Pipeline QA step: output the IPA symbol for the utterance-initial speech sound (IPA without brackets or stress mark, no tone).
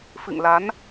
f